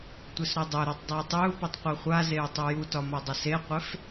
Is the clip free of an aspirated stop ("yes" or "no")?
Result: yes